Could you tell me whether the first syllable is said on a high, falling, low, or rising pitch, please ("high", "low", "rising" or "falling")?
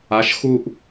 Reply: rising